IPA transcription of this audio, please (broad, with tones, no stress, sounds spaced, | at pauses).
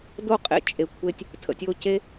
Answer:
d o˦˨ qʼ ḛ˦ t͡ʃʼ e˨ kʷʰ e˦ tʲ | tʰ ə̰˨ tʲ o˧ c e˦